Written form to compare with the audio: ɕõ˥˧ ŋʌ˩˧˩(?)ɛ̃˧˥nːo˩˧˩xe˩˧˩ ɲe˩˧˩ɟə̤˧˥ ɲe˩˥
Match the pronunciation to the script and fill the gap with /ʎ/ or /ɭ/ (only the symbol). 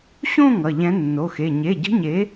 ʎ